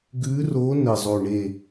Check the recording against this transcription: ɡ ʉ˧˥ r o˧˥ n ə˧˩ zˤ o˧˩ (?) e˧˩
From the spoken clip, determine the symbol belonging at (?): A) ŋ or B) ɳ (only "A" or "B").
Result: B